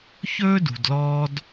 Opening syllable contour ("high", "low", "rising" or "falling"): high